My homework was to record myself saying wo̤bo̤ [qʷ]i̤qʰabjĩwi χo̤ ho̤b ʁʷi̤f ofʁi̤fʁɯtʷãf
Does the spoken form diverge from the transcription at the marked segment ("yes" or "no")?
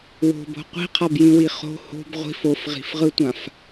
no